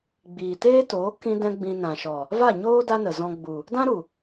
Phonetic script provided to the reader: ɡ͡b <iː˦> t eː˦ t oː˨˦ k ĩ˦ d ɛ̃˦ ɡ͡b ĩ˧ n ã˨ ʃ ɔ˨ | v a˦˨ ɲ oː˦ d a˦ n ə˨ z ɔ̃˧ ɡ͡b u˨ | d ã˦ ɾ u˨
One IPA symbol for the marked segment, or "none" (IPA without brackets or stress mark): iː˨